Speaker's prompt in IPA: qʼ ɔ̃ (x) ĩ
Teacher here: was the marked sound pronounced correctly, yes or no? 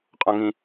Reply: no